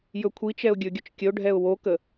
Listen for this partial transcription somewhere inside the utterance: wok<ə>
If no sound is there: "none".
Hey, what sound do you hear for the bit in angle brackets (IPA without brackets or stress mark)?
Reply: ə